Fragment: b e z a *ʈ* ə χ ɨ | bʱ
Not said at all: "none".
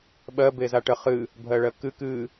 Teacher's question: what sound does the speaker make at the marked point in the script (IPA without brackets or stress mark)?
ʈ